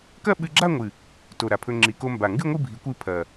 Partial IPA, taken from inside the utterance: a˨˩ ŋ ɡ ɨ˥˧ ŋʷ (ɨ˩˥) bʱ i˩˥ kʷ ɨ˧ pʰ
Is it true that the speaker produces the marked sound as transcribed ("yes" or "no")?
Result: no